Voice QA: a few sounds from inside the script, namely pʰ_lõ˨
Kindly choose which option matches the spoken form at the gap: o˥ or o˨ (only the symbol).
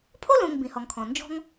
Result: o˥